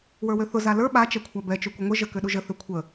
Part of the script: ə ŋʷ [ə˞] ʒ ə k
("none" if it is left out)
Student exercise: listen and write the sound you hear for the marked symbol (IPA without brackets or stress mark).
ə